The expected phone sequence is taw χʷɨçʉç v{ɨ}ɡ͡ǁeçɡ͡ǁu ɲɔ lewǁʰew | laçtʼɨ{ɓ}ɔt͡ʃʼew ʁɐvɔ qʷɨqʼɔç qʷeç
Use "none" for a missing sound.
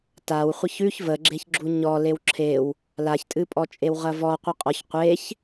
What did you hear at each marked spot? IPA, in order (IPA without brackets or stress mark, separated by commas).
ə, pʼ